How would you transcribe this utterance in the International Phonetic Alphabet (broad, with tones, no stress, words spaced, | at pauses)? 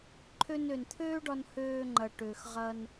ǃʰø˧nø˨nt̪ʰøː˦ɖɒ˧n høː˧ŋ͡ǃɐ˨ʈøː˨xʁɐ˧n